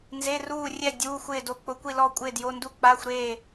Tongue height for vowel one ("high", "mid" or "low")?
mid